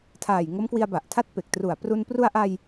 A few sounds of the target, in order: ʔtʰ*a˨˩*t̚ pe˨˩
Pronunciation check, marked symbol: incorrect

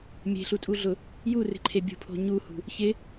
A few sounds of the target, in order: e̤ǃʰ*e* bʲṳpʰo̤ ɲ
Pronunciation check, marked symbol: correct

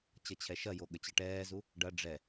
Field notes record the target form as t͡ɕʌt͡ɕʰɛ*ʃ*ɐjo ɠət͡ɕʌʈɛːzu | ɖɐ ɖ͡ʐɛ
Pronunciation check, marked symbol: correct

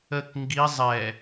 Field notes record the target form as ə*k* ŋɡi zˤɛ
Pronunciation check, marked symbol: correct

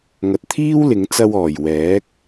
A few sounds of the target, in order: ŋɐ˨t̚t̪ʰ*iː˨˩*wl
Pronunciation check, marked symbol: incorrect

